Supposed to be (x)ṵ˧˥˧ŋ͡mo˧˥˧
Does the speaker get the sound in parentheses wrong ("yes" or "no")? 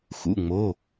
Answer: no